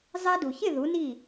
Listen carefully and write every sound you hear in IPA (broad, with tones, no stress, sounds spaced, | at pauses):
zˤ ɛ˧ d u˩ ç ɪ˥˩ ð u˩˥ n i˥˩